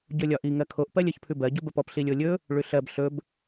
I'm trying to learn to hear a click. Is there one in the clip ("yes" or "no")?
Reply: no